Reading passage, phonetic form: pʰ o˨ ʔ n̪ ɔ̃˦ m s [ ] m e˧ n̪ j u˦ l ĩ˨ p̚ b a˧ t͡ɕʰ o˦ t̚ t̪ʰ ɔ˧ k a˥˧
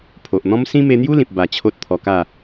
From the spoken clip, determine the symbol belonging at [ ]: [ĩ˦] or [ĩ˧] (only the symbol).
ĩ˦